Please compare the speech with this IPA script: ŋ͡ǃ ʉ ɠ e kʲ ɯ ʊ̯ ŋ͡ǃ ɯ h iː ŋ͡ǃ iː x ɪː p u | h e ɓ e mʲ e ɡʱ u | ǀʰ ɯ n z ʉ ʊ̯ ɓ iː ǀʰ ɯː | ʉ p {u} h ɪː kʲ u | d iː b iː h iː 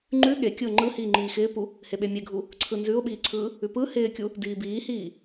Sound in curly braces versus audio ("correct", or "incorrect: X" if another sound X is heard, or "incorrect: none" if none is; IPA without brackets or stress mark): incorrect: ɯ